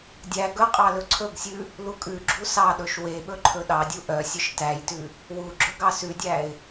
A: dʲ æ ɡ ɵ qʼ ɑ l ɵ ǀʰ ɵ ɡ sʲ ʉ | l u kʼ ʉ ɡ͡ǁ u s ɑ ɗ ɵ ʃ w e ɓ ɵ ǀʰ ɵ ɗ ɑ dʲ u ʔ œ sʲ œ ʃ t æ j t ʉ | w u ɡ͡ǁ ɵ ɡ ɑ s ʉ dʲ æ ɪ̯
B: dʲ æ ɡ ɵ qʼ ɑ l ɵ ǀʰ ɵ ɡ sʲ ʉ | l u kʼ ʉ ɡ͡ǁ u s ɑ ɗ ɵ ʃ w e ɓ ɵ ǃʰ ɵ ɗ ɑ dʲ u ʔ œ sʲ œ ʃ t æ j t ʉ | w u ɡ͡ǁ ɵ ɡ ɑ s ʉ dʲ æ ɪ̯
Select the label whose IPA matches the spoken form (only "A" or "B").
B